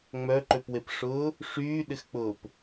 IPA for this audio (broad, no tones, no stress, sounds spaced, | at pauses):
ŋ͡m œ ǃ ø p w e p ʂ ʊː | ʂ yː ɗ ɪ x k͡p ʊː p